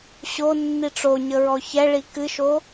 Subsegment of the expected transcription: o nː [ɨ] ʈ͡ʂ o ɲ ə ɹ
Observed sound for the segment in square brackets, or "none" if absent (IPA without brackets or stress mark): i